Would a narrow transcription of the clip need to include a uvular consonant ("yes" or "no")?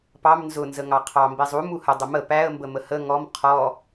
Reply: yes